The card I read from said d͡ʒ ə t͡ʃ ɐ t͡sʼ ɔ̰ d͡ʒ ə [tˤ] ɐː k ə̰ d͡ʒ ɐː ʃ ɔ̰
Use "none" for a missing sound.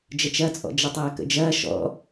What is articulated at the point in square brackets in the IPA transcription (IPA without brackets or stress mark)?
tˤ